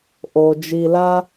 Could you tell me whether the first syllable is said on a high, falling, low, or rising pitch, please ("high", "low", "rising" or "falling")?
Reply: low